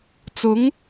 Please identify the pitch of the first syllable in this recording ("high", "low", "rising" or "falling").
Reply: rising